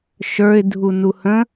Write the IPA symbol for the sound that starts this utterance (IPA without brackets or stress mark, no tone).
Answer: ʃ